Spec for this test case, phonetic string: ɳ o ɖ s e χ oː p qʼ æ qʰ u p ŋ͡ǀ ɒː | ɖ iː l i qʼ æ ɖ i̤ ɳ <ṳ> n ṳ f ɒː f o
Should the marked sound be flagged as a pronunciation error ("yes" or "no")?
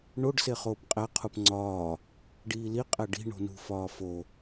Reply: yes